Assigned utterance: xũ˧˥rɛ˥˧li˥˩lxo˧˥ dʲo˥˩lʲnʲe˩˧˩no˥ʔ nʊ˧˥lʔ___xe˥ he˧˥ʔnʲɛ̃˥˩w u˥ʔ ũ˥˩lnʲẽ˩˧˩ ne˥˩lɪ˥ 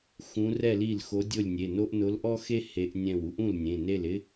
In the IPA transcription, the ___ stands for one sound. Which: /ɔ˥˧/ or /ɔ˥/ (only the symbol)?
ɔ˥